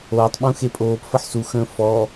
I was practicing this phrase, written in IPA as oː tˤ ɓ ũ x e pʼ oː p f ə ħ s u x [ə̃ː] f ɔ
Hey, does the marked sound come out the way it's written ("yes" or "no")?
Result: yes